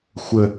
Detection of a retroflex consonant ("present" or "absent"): absent